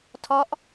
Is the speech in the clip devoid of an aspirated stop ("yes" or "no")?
no